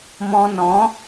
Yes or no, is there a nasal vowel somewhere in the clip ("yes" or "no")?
yes